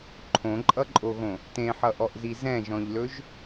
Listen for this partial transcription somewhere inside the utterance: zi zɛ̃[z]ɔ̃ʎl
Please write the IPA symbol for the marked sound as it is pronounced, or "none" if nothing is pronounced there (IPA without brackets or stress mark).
ʒ